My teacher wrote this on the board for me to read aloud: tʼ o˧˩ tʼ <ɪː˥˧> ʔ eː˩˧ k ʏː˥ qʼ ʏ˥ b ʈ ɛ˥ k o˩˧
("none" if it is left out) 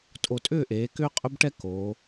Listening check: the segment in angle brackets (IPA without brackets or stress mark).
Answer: ʏː˥˧